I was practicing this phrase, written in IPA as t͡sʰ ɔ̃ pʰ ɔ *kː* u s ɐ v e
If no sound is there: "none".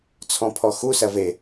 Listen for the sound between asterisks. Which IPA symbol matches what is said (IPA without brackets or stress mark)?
x